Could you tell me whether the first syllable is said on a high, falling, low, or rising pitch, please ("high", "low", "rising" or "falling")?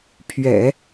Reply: low